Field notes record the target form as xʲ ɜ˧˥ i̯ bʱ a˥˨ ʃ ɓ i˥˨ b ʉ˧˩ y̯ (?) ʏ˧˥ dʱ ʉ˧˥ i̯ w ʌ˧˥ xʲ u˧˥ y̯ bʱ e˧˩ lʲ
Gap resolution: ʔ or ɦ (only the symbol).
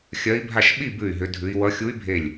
ɦ